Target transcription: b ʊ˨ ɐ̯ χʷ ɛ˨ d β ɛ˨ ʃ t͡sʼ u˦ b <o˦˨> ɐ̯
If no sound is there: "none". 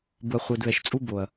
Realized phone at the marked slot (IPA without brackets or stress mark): o˨